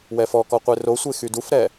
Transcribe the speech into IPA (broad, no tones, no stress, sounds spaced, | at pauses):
w ɛ f ɔ k ɔ qʷ e r o sʷ e x y d u f ɾ ɛ